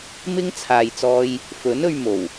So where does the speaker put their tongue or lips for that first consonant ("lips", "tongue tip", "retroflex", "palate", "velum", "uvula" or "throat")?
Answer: lips